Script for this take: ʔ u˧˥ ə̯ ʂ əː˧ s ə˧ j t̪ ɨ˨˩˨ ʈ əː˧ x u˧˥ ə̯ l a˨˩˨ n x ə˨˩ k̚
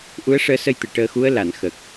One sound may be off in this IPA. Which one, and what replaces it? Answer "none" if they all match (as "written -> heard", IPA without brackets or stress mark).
none